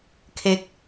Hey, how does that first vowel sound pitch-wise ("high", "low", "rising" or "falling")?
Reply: low